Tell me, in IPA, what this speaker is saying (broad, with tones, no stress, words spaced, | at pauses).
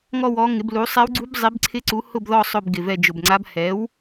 ŋɔ˦˨w ɔ˩˥ŋɪ˩˥blu˩˥ sˤɛ˧˥wɡ͡ǀu˧˥b zˤi˩˥b ǀʰɪ˧˥ǀu˩˥ hʊ˦˨bðɔ˦˨ sˤʊ˦˨b ɡɪ˨˩vɛ˦˨ d͡ʒʊ˨˩bŋ͡ǀa˧˥b hɛ˩˥w